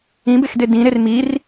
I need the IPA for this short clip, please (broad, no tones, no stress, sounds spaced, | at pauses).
ĩ b e x d e d ĩ ɾ e r m i r